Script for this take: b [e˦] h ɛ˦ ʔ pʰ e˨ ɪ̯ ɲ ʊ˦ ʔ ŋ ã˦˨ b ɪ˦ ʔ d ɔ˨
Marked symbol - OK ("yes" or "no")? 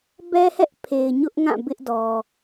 no